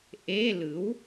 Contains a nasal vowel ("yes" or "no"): no